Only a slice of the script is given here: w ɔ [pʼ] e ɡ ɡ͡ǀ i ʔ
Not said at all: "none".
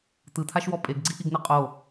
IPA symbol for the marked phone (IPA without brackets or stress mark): pʼ